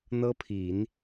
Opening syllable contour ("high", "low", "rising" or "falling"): high